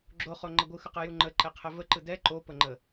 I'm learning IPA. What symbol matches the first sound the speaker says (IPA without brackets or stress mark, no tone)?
ɡ͡ǁ